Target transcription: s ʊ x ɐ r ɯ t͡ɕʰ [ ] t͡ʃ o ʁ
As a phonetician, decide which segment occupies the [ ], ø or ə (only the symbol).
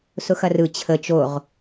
ə